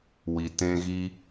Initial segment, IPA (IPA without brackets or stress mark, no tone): w